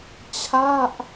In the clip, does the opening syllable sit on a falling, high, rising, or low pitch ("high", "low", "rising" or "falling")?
falling